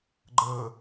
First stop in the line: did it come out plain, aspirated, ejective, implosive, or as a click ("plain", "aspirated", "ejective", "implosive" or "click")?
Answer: click